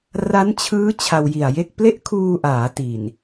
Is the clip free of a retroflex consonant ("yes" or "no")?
yes